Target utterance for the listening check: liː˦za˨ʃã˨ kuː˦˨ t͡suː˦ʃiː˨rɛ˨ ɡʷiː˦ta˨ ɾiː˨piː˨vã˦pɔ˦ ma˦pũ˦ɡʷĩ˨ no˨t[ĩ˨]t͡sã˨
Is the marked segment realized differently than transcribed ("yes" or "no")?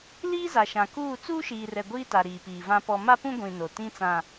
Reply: yes